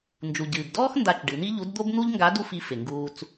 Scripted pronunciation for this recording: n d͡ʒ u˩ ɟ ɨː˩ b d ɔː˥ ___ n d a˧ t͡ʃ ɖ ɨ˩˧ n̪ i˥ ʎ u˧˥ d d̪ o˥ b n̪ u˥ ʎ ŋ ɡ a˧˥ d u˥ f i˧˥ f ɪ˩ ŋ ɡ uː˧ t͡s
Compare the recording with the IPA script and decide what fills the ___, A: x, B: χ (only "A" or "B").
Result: A